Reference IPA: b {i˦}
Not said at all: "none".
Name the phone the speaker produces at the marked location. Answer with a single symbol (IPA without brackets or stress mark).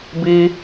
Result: i˦